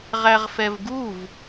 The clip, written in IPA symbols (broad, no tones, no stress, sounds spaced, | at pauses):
ʁ æ ʁ f ɛ v ɡ u v